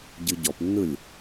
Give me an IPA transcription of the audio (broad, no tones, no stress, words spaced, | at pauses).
ɟɯɟɔpnːɯlʲ